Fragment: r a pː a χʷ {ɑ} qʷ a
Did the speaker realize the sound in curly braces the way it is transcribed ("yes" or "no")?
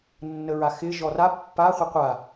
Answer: no